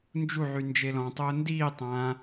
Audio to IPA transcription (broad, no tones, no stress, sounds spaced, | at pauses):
n d͡ʒ u ʕ y n d͡ʒ e l ɔ̃ tˤ ʊː n d iː tˤ ã